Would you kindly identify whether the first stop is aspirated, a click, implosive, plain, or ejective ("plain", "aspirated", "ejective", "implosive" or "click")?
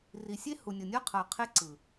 aspirated